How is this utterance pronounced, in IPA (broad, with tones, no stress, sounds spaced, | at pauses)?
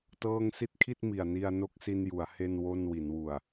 t ɤː˥˩ ŋ s i˥˩ t̚ kʰ i˥˩ t̚ m i˨˩ a̯ n i˧ a̯ n o˦˥ k̚ s i˧ n j u˩˦ a̯ h e˥˩ n w o˥˩ n w i˩˦ n w u˨˩ a̯